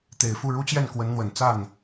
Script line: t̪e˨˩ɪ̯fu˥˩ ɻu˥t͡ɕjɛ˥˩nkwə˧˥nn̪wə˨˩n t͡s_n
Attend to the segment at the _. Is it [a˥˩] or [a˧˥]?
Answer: a˥˩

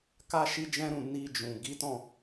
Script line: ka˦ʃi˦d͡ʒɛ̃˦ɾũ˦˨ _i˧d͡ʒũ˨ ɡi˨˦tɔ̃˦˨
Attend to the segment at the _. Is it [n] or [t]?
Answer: n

